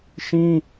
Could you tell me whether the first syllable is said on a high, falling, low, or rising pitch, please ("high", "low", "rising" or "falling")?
high